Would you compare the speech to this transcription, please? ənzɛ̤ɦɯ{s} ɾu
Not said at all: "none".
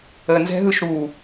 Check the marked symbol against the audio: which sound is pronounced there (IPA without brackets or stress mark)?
ʃ